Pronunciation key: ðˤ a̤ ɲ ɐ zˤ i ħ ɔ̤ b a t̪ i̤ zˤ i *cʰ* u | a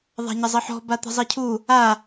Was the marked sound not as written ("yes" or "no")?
no